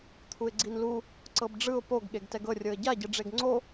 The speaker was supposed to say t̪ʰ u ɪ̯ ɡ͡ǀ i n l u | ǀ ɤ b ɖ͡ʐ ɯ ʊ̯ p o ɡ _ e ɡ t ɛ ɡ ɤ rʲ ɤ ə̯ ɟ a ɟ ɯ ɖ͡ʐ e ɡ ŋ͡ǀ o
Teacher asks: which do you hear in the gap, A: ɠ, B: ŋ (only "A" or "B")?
A